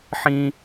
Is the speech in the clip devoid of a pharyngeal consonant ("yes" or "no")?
no